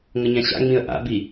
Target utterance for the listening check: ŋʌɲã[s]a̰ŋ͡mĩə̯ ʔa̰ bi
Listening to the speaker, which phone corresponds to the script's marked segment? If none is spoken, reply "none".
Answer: ɕ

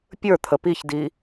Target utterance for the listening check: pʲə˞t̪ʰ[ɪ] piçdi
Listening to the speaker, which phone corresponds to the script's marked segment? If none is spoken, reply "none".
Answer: ə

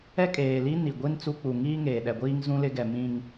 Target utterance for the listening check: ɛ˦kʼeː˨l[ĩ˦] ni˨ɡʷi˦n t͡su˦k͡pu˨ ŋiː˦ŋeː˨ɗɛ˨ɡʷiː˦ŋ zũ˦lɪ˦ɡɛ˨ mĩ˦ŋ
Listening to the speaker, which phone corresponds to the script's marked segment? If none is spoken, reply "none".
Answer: i˦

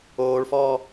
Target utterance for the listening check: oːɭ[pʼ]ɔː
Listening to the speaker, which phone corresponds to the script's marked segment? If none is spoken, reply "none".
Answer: f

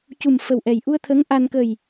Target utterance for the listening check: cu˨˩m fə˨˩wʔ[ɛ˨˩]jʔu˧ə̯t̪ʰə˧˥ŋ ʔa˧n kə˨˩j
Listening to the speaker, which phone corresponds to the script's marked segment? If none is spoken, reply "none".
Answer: ɛ˨˩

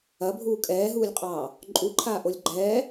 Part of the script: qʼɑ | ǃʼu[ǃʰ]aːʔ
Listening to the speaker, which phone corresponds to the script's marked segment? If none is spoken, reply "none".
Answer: ǃʰ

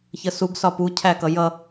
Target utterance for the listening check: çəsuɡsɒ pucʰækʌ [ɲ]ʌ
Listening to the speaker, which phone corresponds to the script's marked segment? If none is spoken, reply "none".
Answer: j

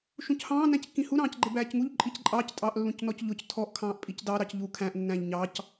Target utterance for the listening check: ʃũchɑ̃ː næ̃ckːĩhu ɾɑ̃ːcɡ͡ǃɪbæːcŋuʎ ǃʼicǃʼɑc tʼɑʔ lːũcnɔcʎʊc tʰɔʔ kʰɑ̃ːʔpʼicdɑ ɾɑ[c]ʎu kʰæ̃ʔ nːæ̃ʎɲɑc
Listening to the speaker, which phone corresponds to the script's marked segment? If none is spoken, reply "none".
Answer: c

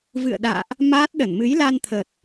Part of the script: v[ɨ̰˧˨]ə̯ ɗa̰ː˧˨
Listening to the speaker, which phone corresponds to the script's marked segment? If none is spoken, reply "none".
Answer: ɨ̰˧˨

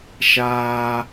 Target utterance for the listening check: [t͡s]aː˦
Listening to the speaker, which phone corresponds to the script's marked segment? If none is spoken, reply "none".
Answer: ʃ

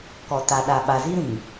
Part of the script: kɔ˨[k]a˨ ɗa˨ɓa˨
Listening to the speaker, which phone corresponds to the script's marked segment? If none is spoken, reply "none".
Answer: t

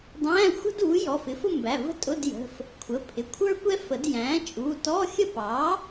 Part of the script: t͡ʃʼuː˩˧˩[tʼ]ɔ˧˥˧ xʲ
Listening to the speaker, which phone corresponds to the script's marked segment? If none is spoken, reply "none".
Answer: t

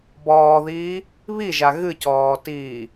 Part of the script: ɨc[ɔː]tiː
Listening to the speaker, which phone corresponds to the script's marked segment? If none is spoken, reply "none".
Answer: ɔː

